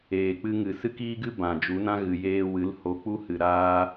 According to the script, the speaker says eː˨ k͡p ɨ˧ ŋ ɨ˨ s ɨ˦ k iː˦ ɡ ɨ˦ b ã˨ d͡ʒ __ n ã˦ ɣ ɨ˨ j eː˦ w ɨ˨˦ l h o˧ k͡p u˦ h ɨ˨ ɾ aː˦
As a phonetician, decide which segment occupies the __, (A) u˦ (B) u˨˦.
B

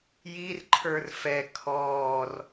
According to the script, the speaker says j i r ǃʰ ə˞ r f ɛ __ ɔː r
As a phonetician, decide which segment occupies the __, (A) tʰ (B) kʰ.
B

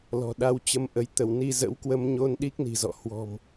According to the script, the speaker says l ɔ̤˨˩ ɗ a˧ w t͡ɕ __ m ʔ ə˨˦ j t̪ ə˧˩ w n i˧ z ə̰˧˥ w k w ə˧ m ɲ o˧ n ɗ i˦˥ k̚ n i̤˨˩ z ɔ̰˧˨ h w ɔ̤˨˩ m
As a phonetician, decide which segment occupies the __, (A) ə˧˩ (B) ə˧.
B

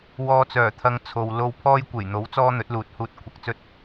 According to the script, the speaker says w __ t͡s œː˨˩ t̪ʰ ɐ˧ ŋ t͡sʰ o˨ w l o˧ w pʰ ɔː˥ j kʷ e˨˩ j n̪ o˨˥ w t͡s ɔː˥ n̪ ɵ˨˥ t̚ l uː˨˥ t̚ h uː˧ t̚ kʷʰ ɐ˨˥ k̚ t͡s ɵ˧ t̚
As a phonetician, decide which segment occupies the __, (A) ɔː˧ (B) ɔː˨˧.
A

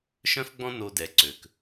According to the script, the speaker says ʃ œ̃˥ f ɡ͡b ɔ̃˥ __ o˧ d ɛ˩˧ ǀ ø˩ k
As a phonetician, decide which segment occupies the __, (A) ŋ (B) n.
B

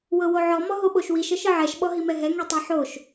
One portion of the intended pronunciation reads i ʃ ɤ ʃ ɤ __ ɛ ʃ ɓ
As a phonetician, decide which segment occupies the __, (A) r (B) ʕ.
B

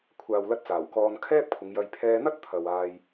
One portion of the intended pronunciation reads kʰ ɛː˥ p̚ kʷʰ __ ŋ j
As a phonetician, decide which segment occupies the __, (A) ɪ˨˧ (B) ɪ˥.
A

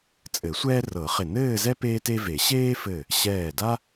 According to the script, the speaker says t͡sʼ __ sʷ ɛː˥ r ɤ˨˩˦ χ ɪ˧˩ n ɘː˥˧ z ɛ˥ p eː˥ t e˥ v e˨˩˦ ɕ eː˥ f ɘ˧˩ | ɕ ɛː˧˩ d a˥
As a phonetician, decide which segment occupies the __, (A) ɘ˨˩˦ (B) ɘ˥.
A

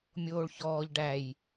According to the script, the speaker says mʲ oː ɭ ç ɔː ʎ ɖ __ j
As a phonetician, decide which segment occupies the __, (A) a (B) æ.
B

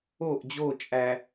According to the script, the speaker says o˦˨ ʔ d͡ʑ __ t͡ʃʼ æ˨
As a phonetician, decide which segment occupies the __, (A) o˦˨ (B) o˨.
A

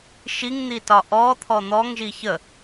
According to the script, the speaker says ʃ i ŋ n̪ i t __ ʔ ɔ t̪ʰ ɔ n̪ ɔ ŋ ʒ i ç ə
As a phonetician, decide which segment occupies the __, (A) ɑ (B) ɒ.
B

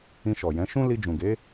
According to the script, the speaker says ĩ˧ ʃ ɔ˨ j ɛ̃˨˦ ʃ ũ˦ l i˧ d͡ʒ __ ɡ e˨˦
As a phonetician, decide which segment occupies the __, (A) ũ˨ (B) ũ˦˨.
A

